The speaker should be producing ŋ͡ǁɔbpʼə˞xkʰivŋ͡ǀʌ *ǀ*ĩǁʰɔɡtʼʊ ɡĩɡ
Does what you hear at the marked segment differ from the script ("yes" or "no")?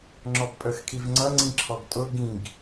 yes